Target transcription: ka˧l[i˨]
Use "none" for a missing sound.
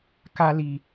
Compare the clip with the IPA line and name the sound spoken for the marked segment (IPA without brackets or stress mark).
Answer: i˨